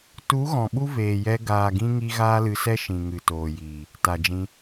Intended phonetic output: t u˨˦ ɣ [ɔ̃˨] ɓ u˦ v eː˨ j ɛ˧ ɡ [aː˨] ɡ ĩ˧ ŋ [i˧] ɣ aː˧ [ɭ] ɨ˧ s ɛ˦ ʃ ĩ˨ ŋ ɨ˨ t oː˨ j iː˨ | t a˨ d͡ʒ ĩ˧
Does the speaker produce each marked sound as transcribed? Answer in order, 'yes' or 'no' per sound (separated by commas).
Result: yes, yes, yes, no